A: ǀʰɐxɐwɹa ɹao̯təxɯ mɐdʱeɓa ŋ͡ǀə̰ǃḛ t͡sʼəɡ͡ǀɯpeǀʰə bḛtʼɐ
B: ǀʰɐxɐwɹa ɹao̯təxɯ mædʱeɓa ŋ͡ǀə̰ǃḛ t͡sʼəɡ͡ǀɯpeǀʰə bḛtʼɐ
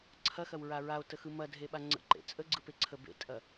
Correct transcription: A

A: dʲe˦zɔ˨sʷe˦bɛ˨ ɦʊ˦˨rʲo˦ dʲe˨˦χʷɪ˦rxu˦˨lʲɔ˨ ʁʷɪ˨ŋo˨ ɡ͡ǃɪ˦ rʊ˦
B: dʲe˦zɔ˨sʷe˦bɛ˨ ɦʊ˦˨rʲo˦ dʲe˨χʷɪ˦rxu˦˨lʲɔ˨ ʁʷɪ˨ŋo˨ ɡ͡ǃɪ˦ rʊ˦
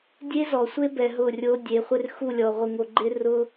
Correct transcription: A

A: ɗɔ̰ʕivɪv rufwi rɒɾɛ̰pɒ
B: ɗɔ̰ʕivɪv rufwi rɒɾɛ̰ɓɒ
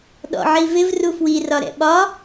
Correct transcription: B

